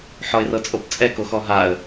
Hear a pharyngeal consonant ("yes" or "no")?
yes